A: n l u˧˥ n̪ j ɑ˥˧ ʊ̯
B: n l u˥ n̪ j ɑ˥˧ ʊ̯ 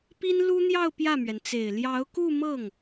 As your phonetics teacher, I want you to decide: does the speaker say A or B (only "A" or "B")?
B